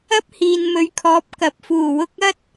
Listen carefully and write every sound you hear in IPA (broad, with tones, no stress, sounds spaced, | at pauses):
ɐ˥ p̚ h iː˨ n m ɵ˨˧ ɥ kʰ ɔː˨˥ p̚ k ɐ˨ p̚ f uː˨˩ w ʊ˧ k̚ ɐ˥ t̚